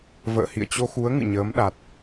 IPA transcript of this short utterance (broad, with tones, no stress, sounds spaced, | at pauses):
v ə̰ː˧˨ h ḭ˧˨ ə̯ t͡ɕ o˧ x u˨˦ ə̯ ŋ ɨ̰˧˨ ɲ əː˨˦ m ɗ a˨˩ t̚